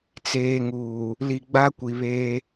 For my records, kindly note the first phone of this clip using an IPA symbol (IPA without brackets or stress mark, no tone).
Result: t͡s